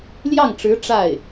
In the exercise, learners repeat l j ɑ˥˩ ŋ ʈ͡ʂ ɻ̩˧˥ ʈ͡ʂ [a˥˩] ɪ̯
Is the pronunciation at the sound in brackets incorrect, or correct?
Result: correct